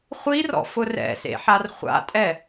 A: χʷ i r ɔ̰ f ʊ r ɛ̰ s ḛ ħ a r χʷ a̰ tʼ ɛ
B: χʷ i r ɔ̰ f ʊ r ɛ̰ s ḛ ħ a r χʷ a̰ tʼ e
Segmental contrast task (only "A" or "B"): A